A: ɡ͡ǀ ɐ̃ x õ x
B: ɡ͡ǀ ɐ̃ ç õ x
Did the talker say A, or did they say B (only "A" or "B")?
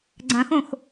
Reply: A